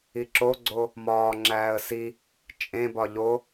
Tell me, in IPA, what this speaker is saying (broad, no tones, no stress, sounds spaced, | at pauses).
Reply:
i ǁ o ɡ͡ǀ o | m ɒː ŋ͡ǁ æː ə̯ s i | t͡ʃʼ ẽ b ɒ ʎ o